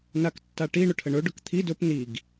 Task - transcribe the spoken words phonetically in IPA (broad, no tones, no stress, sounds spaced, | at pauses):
n a k tː a ʈ i ɳ ʊ ʈʰ ə ɳ ɵ ɖ ʊ k t̪ʰ i d ɵ p n i ɡ